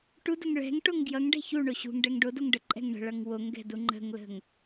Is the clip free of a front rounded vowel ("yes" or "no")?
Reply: yes